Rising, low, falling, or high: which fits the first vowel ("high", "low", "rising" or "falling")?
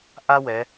high